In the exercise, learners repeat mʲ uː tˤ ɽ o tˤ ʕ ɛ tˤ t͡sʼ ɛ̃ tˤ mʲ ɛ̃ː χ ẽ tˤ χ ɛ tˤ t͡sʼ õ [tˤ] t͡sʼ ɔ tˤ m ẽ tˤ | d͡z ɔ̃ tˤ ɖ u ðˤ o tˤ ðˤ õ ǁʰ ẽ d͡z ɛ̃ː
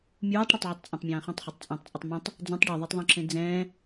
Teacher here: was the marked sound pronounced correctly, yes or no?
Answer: yes